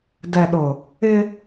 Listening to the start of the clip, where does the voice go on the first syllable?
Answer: low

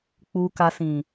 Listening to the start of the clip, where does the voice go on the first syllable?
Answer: low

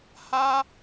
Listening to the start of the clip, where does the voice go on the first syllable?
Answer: high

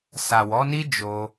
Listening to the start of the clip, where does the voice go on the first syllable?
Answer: low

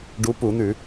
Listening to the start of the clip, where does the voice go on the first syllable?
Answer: rising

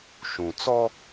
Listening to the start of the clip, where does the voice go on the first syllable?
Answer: low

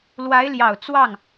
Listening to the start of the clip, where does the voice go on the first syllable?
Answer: rising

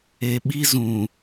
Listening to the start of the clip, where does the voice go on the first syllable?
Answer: low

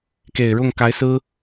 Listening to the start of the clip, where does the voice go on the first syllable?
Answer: low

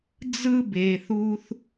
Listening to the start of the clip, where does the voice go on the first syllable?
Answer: high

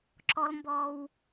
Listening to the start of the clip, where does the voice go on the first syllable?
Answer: high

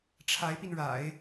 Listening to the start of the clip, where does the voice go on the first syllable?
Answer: rising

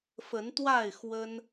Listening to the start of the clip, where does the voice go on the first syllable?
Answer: rising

